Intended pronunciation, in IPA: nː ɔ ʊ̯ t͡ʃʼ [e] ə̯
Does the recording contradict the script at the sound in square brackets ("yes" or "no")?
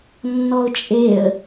no